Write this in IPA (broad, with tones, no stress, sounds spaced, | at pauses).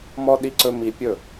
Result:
m ɔ˦ ɗ i˦ ǀ ɵ˦ m i˧ pʲ ɵ˦˨